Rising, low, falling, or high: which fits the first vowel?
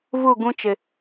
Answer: falling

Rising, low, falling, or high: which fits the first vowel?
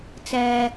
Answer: low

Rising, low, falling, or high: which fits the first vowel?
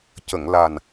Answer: low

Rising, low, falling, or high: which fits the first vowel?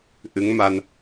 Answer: rising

